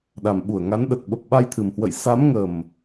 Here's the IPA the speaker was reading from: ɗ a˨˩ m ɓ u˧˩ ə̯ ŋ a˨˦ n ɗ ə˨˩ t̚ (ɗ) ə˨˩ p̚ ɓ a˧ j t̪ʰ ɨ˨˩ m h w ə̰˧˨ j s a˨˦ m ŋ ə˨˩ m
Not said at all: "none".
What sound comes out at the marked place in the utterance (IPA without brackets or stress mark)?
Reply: ɓ